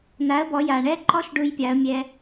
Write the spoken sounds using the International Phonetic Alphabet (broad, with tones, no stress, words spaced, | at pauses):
na˩˥ə̯bɔ˩˧ ja˩ɳɛ˦ǃɔ˦ʃ ɖu˦jpʲa˩˥ə̯mʲɛ˦